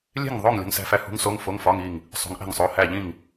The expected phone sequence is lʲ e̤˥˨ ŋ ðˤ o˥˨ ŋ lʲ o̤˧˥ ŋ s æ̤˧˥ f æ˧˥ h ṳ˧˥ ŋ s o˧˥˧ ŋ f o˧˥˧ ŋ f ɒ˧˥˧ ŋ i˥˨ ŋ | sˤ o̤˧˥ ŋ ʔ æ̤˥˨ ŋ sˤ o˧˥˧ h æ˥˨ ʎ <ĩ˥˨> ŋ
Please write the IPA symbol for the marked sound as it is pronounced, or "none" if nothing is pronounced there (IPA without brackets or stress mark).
ĩ˥˨